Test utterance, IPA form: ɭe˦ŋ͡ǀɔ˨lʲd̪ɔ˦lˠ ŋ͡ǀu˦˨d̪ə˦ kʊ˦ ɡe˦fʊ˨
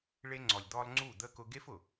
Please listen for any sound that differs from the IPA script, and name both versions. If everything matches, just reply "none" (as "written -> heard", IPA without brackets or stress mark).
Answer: none